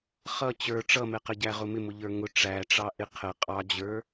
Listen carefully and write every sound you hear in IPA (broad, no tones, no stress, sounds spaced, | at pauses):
χ ʌ t͡ɕ ə˞ ʈ͡ʂ ʌ m ɛ q ə ɟ æ ʁ ʊ m ɪ m ʊ ʎ ə˞ ŋ ʊ ʈ͡ʂ æ ʈ͡ʂ ɑ ʔ ɪ qʰ ə qʼ ɑ d͡ʑ ə˞